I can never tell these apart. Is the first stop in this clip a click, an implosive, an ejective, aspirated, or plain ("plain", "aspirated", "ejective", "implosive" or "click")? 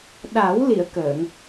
implosive